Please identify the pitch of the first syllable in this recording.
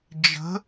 rising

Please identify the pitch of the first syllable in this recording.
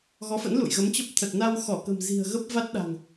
rising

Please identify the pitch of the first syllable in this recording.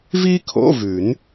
high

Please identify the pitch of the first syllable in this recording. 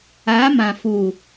rising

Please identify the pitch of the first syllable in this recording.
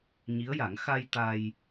rising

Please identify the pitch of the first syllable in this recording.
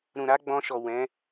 low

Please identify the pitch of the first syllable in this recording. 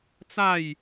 falling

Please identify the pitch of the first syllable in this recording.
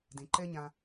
low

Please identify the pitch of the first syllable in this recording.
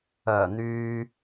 low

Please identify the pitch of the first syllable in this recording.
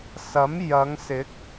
rising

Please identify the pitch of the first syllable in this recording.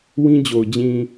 high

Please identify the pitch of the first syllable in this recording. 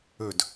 falling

